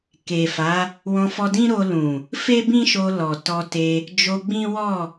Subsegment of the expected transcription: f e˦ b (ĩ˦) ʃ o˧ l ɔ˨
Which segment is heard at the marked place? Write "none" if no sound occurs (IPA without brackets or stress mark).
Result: ĩ˦